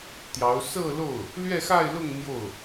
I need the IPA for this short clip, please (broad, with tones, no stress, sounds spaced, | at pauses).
t̪ j ɑ˧˥ ʊ̯ s ɤ˥˧ l o˥˩ ʊ̯ | l ɥ ɛ˥˧ x a˥˧ ɪ̯ l ʊ˥˧ ŋ n̪ j o˥˩ ʊ̯